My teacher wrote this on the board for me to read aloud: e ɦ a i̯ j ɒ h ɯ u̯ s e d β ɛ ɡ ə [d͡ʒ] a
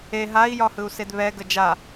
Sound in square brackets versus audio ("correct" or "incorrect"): correct